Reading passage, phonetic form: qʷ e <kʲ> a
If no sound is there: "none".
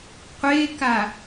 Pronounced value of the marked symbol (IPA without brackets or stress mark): k